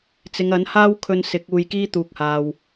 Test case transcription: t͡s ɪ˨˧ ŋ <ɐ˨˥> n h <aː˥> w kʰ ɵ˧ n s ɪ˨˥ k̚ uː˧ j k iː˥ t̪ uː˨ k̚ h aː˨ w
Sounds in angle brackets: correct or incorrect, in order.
correct, correct

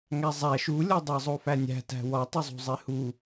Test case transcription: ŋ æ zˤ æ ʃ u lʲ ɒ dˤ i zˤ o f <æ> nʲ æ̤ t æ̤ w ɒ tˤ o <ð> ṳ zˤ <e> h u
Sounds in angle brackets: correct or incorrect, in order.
correct, incorrect: zˤ, correct

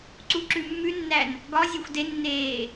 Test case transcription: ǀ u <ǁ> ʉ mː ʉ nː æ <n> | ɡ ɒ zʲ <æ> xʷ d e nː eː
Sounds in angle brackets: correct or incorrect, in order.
correct, correct, correct

